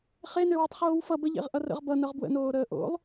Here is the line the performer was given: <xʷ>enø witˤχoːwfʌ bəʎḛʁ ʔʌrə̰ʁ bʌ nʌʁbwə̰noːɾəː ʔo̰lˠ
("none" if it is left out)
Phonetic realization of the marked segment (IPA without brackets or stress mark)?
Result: χ